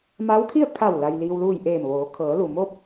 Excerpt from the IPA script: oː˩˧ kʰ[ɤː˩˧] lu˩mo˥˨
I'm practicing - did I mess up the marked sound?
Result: no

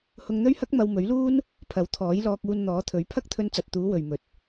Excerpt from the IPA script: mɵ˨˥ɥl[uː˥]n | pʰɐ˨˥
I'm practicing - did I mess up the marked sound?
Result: no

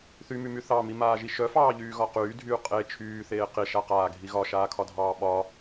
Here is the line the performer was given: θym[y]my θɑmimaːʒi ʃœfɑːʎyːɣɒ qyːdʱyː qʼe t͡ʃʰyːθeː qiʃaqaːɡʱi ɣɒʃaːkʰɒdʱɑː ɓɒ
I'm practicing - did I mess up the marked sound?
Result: no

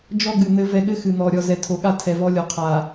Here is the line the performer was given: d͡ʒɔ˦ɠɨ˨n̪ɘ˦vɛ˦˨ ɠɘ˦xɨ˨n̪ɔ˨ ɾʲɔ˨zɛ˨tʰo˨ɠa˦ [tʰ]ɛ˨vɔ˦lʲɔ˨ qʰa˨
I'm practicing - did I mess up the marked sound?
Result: no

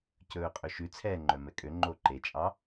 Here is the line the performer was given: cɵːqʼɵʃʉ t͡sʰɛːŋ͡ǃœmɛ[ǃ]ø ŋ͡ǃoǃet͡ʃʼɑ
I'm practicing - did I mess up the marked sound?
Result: yes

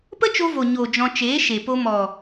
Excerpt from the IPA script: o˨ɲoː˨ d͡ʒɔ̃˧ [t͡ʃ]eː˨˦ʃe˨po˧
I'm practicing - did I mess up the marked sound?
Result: no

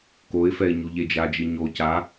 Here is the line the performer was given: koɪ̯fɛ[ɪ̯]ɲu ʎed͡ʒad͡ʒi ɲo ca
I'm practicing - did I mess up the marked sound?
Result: no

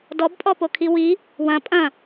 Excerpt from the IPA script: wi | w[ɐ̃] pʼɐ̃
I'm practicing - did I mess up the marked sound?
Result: no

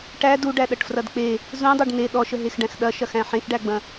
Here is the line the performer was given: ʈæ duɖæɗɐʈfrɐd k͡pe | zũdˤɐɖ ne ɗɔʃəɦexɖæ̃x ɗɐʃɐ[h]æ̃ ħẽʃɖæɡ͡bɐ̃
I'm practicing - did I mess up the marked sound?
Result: yes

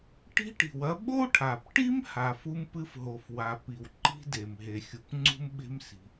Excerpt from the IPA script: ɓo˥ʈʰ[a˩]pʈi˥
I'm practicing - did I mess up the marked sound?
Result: no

